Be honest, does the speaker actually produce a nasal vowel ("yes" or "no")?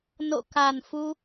no